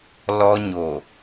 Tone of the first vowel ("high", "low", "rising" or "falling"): high